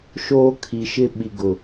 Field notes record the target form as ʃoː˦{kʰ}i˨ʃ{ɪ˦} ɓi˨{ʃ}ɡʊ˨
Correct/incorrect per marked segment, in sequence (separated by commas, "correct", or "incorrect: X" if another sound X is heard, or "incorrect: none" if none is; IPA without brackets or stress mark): correct, correct, incorrect: none